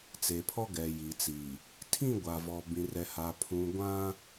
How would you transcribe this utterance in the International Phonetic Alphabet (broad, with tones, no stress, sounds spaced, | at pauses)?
t͡s e˨ pʰ ɔ˦ ɡ ɛ˨ j i˨ t͡s iː˨ | tʰ ĩ˦˨ ɡʷ a˨ v ɔ˨ b ĩ˨ r ɛ˨ h a˨ pʰ ũ˨ ɡʷ ã˦